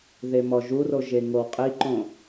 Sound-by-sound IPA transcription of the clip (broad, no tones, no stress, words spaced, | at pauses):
ðemɔʒuro ʒeŋowqʼiǃõ